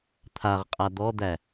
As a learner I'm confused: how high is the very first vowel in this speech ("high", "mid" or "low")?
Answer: low